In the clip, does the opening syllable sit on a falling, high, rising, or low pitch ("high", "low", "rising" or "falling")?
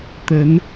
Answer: rising